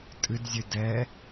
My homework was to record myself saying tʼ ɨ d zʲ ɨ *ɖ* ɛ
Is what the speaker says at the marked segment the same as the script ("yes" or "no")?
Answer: no